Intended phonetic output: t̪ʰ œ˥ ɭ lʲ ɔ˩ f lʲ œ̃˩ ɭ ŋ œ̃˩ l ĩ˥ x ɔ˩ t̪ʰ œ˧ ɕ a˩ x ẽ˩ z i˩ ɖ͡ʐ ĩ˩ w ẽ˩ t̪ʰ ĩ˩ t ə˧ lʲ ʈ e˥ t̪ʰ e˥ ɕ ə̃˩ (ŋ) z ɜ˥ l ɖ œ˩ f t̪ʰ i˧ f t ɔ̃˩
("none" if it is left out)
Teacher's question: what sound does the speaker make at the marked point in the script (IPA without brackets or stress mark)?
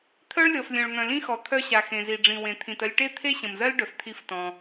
m